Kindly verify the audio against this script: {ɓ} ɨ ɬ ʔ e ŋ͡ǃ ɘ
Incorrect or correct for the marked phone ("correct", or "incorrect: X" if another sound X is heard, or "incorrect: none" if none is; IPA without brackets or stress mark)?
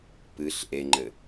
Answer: incorrect: p